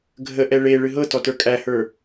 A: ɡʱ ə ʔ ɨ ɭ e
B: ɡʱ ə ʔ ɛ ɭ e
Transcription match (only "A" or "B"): B